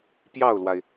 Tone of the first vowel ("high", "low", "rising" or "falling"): falling